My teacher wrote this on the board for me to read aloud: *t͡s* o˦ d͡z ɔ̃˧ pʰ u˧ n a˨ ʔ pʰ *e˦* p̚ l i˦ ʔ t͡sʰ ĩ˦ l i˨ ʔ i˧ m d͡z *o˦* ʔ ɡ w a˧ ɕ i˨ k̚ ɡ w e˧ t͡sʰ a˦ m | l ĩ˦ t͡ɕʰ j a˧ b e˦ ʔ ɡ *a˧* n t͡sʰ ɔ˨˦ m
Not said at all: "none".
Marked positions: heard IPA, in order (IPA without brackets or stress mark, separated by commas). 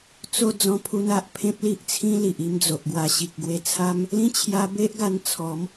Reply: t͡s, ẽ˦, o˨, a˧